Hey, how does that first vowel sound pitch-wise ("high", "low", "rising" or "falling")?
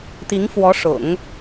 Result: rising